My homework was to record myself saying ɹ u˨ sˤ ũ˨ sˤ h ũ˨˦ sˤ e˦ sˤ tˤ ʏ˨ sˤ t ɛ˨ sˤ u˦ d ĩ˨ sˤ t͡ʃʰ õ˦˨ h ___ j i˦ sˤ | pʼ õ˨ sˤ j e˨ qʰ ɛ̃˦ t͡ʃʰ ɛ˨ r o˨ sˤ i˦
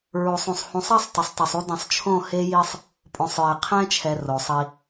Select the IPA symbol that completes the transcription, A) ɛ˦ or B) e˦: B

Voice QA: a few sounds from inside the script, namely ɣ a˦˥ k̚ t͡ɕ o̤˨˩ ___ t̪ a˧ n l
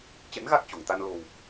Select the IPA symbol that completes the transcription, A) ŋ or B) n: A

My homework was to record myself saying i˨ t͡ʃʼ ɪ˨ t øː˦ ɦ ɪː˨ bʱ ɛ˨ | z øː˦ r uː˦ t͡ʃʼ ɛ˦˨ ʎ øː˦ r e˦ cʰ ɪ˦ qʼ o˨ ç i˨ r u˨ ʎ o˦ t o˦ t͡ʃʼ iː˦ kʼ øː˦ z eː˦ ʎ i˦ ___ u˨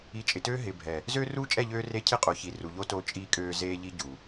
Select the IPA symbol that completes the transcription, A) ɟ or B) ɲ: A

